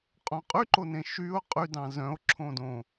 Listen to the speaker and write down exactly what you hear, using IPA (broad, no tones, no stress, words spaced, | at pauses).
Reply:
qʼõqʼyǃonẽ ʃyo̯ qʼydɑ̃ zœ̃o̯ ǁʰõdõ